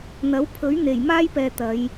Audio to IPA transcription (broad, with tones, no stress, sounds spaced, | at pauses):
n̪ ɐ˨˥ w pʰ ɵ˨˥ ɥ n̪ e˨˩ j m aː˥ j p ɛː˨ t̪ ɐ˨˧ j